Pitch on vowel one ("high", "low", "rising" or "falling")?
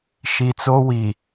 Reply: low